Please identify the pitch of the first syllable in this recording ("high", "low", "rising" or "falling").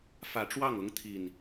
rising